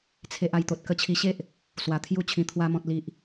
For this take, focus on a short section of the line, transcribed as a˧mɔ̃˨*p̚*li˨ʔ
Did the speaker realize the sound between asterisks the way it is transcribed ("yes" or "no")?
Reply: no